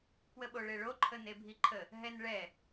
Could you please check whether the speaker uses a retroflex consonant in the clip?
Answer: yes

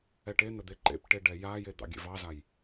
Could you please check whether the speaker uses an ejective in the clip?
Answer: no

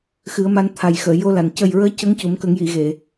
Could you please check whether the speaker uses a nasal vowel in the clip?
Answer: no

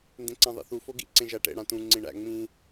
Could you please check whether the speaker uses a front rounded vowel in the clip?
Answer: no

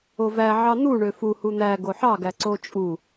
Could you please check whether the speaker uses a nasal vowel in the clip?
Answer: no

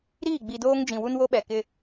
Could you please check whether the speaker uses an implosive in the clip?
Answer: yes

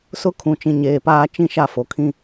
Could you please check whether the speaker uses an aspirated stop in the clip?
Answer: yes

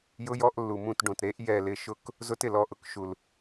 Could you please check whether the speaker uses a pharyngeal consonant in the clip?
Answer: no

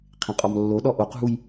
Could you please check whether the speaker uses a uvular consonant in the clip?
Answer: yes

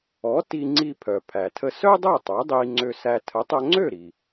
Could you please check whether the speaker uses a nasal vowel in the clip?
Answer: no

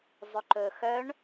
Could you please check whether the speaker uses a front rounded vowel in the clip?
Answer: yes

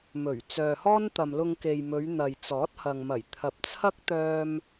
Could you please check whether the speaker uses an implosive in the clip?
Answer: no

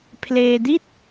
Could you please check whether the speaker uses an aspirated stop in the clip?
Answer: yes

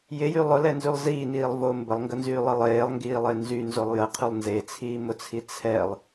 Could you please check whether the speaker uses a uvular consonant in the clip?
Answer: yes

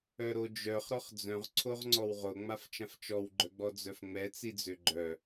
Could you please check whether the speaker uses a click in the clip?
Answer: yes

